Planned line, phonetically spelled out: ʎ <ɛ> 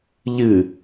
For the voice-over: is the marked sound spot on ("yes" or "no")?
no